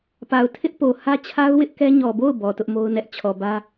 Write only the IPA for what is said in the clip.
p a˨ ʊ̯ tʰ ɪ˦ ʔ p o˨ h ä˦ t͡ɕʰ a˦ ʊ̯ w ɪ˦ ʔ k ɛ˦ ɲ ɔ˨ b o˦˨ ʊ̯ b ɔ˨ t ʊ˦ ʔ m o˦ ʊ̯ n ɛ˦ ʔ t͡ɕʰ ɔ˨ b ä˦

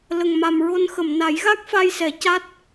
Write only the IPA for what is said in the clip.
l ə˨˩ ŋ m a˨˩ m ɹ o˧ n x ə˨˩˨ m n a˨˩˦ j ɣ a˦˥ k̚ f a˧ j s ɛ˨˩˦ c a˦˥ t̚

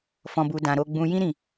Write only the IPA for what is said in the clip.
f ɔ̃˨ b u˨ d ã˨ ɾ o˧ ɡ͡b ũ˧ j ĩ˦ ɾ ĩ˦˨

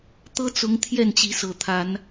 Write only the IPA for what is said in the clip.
t̪ ɤ˦ t͡s ʊ˨˦ ŋ t̪ʰ j ɛ˥˨ n t͡ɕ i˨˦ s ɤ˨˩ t̪ʰ a˨˦ n

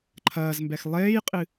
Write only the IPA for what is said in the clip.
ǃʰ ɐː z m b ɛ x lˠ eː j qʼ ɨ

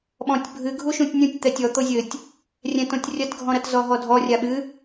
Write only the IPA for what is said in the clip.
ɓ ɔ̃ tʲ bʱ ɨ ɡʱ u ʃ ũ tʲ nʲ ũ tʲ t̪ ɛ tʲ ɔ t̪ o zʲ ɘ tʲ | rʲ ɛ̃ t õ tʲ rʲ ɐ t ɡʱ ɔ̃ ɾ ɐ t z ɔ ɦ ɔ dʱ ɔ rʲ a ɓ ɨ

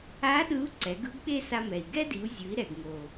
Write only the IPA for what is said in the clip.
a˧˥ ɗ ɯ˧˥ u̯ ǀ ɛ˩˧ ɡ ɯ˧ ɡ ɓ e˧ s a˧ m ɛ˩ i̯ ɡ ɛ˥ d i˩˧ u̯ zʲ ɯ˩˧ i̯ ɾ ɛ˩ ɡ ŋ o˩

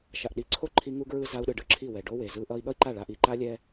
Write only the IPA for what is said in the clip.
ʃ a˨ ʔ ɗ i˨˦ ǀʰ o˦ ǃʰ i˧ ŋ u˦ ɡ ɹ ɯ˦ z a˧ u̯ ɗ ɯ˨ ɖ ɯ˦˨ ǁʰ i˦˨ w ɛ˨ ɖ o˦ w e˨ z ɯ˧ ʔ ʌ˧ i̯ ɠ ʌ˦ i̯ ǃ a˦˨ ɭ a˧ ʔ i˨ ǃ a˦ lʲ ɛ˦

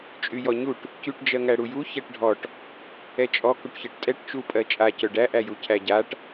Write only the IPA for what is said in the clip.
t͡ʃʼ y j ɔ ɲ u ʈ | c y ʈ d͡ʒ ɜ ŋ æ ɽ u j u ç æ ʈ ɖʱ ɔ ʈ | ɛ t͡ʃʼ ɔ k u ʈ ç ɜ ʈ tʼ ɛ ʈ t͡ʃ u pʼ ɜ t͡ʃʼ a c œ ɖ æ ʔ æ j u cʰ æ ɟ a ʈ

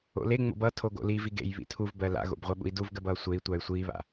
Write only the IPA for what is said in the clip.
o̰ l e ŋ͡m o̰ b ʌ tʰ o ɡ o̰ l i v i ɡ ḛ j β ḭ tʰ u v b ɜ l a̰ ɣ o̰ b ʁʷ ɜ ɓ ṵ i̯ d u v ɡ ɜ b ʌː sʷ e i̯ tʷ a y̯ sʷ iː β a̰

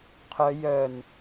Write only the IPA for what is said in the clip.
qʰ œ j œ n

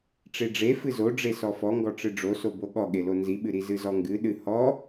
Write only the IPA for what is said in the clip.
ʈ͡ʂ e ɖ͡ʐ e f ɨ z o ɖ͡ʐ e s ɔ f ɔ ŋ ɡ ɔ ʈ͡ʂ ɨ ɖ͡ʐ o s o b o ɠ ɔ ɠ e l o n z i ɓ ɨ ɾ i z ɨ z ɔ ŋ ɡ ɨ ɗ ɨ h ɔ

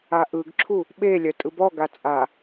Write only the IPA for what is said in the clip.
a ʔ ɯ ɡ ǁʰ u | ɓ e lʲ œ tʼ ɯ b ɔ ɡ a t͡sʼ a

